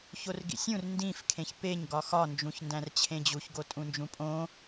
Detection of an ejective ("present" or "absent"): present